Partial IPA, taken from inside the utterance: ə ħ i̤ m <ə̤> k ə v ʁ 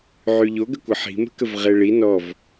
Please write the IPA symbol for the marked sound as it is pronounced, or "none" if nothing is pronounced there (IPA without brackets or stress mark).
ə̤